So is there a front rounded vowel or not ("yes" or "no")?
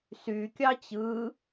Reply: yes